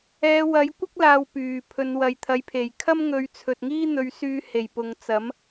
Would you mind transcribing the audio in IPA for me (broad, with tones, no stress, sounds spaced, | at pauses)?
ɛː˨˧ w ɐ˨˥ j kʷ ɪ˥ k̚ l aː˧ w p yː˨˩ pʰ ɵ˨˧ n w ɐ˨ j t̪ʰ ɐ˨˥ j pʰ e˨˩ j kʰ ɐ˥ m ŋ ɵ˨˧ ɥ t͡sʰ ɵ˨ t̚ ŋ iː˥ n̪ ɵ˨˧ ɥ s yː˧ h e˨˩ j p ʊ˨ ŋ t͡s ɐ˨˥ m